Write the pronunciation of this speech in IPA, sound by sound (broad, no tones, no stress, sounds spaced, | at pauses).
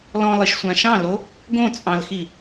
l ɔ̃ lˠ i ʃ sʷ ã ʃ ɑ̃ l o | ɡ õ t͡sʼ ɑ̃ l x i